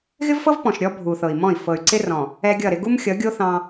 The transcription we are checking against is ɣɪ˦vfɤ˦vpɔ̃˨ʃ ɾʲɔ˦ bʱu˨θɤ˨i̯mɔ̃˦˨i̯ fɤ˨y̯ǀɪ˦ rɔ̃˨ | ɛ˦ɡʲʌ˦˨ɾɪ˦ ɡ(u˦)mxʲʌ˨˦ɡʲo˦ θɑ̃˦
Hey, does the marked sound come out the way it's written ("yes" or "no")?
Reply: yes